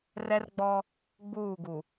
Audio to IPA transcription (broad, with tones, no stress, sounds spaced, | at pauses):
r ɛ˦ r ɡ͡b ɔ˦ | ɡ͡b uː˦˨ ɡ u˨